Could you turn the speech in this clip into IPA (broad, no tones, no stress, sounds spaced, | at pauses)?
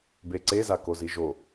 b e ǀ e z a k o z i ʒ o